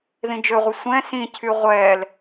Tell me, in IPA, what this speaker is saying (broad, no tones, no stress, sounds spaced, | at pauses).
ð ĩ d͡ʒ ø ʁʷ ə sʷ ɛ̃ s ĩ cʰ y ʁʷ ɛː l